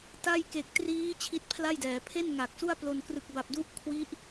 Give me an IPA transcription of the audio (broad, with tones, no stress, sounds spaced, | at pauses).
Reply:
t a˥˩ j k e˨˩ k̚ t r iː˦˥ t͡ɕʰ i˦˥ t̚ pʰ l a˥˩ j d ɛː˩˦ pʰ e˥˩ n ŋ a˨˩ k̚ s u˥˩ a̯ p l o˧ n k r ɯ˨˩ k̚ b a˨˩ p̚ d u˦˥ ʔ kʰ w i˦˥ ʔ